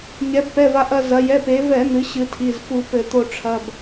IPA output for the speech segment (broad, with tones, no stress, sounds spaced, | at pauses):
ɲ ɛ˩˧ b p ɛ˩˧˩ v a˧ ʔ ɐ˧ z ɐ˩˧ j ɛ˩˧˩ p e˩˧ v ɛ˧˩˧ n̪ ɨ˩˧ ɕ ɨ˩˧ tʰ i˩˧˩ z f u˧˩˧ p ɘ˧˩˧ t̪ o˧ ʈ͡ʂʰ ɐ˩˧˩ b